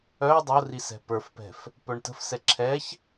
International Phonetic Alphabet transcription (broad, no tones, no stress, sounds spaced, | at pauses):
œ dˤ o r i s ɛ̤ p ə˞ f p ɛ̤ f | p œ ɳ t ə̤ f s ɛ ǁʰ ɛ ç